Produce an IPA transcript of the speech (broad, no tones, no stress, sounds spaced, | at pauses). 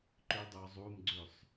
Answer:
ǃ ø dˤ œ zˤ u m ɡ͡ǀ ø sˤ